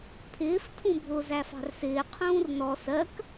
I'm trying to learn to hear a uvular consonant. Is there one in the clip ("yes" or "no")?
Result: yes